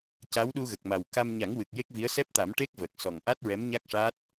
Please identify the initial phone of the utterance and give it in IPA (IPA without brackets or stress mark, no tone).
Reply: c